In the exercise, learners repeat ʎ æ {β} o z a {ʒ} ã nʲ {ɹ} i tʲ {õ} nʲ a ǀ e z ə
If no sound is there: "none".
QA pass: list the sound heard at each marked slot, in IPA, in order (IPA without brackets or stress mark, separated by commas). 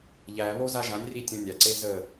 β, ʒ, r, õ